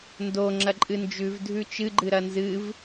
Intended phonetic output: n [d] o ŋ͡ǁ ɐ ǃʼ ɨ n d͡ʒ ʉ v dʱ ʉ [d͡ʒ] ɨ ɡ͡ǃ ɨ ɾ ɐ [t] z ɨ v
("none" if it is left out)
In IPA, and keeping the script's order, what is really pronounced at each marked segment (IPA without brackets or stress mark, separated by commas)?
d, t͡ʃ, n